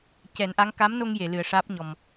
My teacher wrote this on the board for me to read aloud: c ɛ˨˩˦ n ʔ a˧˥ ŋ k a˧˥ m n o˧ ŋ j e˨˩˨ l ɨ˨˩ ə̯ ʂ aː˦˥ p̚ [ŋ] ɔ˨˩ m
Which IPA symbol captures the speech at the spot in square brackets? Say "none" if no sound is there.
ɲ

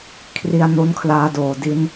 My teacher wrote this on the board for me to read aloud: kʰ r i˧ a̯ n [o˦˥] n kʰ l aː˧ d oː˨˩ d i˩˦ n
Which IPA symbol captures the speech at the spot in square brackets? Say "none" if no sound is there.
o˦˥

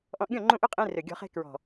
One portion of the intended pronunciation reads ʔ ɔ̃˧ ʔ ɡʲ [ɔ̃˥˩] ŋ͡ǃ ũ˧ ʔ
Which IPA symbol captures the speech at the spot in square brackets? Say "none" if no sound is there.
ɔ̃˥˩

